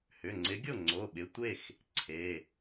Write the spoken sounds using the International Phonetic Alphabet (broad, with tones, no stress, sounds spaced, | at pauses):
h ʏ˩˧˩ ŋ͡ǀ ɪ˨˦ ɡʲ o˥˩ ŋ͡ǀ o˩˧˩ ɓ ɪ˩˧˩ tʷ e˥˩ x | ǀʰ e˩˧˩